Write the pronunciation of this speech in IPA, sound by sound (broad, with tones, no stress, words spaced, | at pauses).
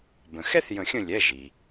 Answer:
bə̃˩xɛ˥θ jə̃˨˩˦xʲə̃˦˨lʲɛ˩˧˩ ʒi˩